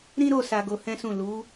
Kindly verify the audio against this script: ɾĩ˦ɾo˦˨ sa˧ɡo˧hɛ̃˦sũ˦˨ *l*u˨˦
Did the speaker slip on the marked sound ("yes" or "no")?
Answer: no